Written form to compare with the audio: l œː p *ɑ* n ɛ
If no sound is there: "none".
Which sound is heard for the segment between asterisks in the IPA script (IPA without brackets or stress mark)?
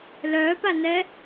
a